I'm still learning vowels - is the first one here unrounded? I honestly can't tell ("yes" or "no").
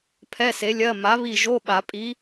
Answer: yes